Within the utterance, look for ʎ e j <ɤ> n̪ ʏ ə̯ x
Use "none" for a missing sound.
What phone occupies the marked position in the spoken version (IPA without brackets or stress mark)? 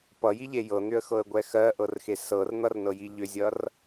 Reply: ɤ